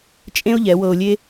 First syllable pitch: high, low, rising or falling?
high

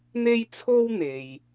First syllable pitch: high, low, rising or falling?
high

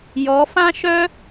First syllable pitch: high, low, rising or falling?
rising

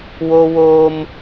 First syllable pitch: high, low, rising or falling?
high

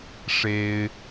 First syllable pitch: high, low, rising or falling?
high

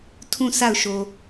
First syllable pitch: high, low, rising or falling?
falling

